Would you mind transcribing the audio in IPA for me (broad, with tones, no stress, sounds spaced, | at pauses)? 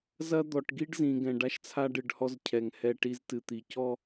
z ɐ˦ d̪ ɔ˨ ʈ ɡ i˦ ɖ z ĩ˨ ɡ ɛ̃˨ ɖ a˦ ʃ t͡sʰ a˦ ɖ ɨ˨ ɖ h ɔ˦ z cʰ ɛ˨ ŋ h ɛ˦˨ ʈ i˦ z t ɨ˨ t̪ i˨ c ɔ˦˨